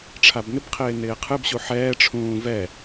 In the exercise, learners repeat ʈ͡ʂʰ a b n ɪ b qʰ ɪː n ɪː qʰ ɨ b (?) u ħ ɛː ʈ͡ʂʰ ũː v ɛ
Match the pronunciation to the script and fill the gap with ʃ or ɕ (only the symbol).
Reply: ɕ